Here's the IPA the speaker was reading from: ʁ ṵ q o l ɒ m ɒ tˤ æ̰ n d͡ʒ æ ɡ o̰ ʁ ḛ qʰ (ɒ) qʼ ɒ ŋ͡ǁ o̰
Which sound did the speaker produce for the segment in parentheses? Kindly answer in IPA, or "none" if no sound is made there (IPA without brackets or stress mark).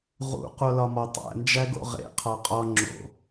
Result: ɒ